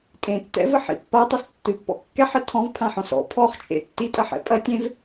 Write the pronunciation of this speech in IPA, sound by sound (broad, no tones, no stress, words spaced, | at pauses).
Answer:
tʼẽtːɛ̰vɘħḭ pːatˤɛs tːɨpːɔ̰ kːɛħɛ tʰɔ̃vpʰãħɔ̃s ɔ̰ pʰɔχt͡ʃʼḛ tːitʼɐħɛ̰ pʼɐ tʲẽv